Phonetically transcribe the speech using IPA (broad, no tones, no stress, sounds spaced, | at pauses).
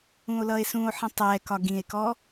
ũ o̯ l ʌ e̯ s ũ o̯ ħ ə̃ tˤ ɛ k ɒ ɡ ĩ e̯ k ɔ